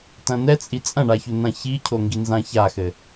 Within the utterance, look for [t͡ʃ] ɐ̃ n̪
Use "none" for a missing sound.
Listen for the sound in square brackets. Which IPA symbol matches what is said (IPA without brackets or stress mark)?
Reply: t